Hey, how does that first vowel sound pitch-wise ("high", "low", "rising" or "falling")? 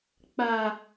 high